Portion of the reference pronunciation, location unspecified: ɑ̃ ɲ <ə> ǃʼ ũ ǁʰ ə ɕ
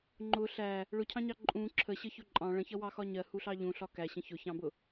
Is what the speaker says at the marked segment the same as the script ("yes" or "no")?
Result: no